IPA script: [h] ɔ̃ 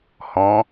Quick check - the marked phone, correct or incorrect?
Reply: correct